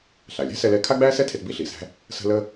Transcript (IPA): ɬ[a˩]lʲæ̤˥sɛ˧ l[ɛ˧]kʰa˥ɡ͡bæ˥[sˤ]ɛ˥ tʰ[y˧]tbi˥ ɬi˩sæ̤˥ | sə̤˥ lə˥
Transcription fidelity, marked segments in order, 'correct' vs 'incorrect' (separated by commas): correct, correct, incorrect, incorrect